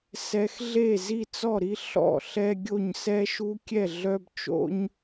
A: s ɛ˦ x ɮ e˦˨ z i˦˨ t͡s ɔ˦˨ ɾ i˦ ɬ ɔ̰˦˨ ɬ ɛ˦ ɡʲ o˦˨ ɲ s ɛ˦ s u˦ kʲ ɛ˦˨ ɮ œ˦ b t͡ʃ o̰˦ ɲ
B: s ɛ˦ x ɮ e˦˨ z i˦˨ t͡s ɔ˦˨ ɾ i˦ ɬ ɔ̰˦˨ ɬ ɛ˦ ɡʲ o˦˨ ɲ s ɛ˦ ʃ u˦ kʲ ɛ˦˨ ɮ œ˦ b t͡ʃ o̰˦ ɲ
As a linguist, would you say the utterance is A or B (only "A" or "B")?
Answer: B